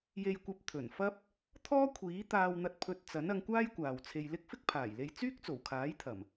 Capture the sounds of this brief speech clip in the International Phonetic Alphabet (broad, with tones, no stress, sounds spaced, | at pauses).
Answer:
j e˧ j kʷ ɐ˧ p̚ t̪ʰ ɵ˨˩ n f ɐ˥ p̚ | t̪ʰ ɔː˥ kʷʰ iː˨˥ t̪ aː˧ w n̪ ɐ˧ t̚ pʰ ɵ˧ t̚ t͡s ɐ˨˥ n ɐ˨˧ ŋ kʷ aː˥ j kʷ aː˨ w t͡sʰ e˧ j l ɪ˥ k̚ f ɪ˥ k̚ pʰ aː˨˩ j l e˧ j t͡s yː˥ k̚ t͡s o˨˩ w kʰ aː˨˥ j t̪ʰ ɐ˨˩ m